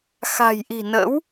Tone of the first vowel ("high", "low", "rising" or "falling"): low